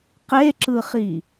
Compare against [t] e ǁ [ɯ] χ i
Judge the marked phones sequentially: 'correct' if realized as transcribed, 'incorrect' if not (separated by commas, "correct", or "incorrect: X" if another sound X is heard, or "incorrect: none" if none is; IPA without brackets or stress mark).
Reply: incorrect: q, correct